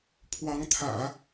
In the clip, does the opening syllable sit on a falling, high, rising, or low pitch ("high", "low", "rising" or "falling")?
rising